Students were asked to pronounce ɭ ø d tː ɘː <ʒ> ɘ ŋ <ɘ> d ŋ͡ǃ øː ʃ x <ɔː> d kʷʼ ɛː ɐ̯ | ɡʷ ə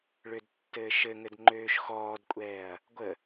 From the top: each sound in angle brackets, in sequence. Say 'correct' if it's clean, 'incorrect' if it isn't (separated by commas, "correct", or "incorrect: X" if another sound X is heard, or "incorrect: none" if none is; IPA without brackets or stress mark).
incorrect: ʃ, correct, correct